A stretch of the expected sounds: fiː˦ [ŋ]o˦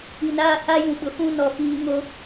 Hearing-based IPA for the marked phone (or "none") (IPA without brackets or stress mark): ŋ